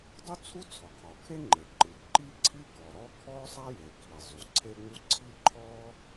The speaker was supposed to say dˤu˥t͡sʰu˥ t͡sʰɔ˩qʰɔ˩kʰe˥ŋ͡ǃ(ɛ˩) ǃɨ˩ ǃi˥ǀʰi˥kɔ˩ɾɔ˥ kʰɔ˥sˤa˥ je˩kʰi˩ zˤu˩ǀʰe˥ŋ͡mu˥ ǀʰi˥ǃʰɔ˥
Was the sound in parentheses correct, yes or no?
no